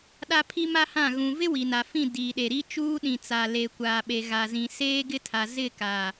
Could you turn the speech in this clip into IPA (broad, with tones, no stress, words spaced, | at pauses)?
ɗa˦pʰi˦ma˦hã˦˨ ɣũ˨vɪ˦ wi˨na˨fĩ˦˨ diː˨ ɗe˨ɾi˦t͡ʃuː˦ ɗĩ˨t͡sa˨ leː˨kʷaː˨ɓe˨ ɣa˨zĩ˨ seː˦ɡɪ˦tʰa˨ zɪ˦˨ka˨